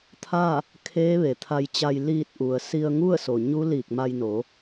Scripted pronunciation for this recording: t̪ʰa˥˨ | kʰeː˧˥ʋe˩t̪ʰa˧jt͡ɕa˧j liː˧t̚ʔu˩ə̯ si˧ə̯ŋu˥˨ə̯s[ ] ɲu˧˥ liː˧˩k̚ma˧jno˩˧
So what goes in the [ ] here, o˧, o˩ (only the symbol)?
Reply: o˩